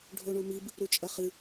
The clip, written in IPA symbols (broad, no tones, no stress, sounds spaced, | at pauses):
ɖʱ o ɳ u m i b | ɾ u t͡ʃʼ ɐ χ ɨ